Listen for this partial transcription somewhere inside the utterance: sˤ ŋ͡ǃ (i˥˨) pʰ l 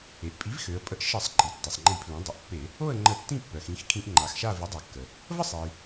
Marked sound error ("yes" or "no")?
yes